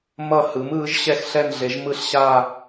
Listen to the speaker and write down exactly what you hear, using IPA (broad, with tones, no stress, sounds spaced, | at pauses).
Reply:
m ʌ˦˨ h ɯ˩˥ m ɯː˩˥ ʒ ɕ ɛ˦˨ x ɬ ɛ˦˨ n ɮ e˩˥ ʒ m ɯ˦˨ ɬ ɕ aː˦˨